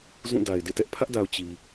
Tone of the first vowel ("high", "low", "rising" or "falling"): falling